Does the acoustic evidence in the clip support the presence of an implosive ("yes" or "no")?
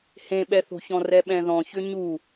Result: yes